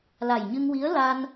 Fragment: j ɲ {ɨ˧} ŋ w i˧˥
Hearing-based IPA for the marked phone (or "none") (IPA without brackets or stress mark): ɨ˧